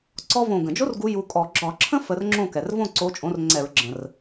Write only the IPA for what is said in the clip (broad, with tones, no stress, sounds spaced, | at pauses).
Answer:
ǀ ɔ˥ v õ˧˩ ɡ ə̃˩ d͡ʒ o˥ r ɡ u˨˦ j u˨˦ kʼ ɔ˧˩˧ ɡ͡ǁ ɒ˧˩˧ ǁʰ ə̃˥ f ə˨˦ r ŋ͡ǁ õ˥˨ k ɛ˩ r v õ˥˨ ǀ o˨˦ t͡ʃʼ õ˨˦ r ŋ͡ǀ ɛ˧˩˧ ɹ ɡ͡ǁ ə̃˩ r